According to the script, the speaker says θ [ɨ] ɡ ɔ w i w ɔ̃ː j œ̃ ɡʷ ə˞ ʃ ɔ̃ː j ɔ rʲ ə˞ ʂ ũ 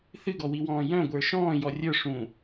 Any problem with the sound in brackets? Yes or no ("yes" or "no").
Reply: no